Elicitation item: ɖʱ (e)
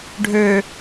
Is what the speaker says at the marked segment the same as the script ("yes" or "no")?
no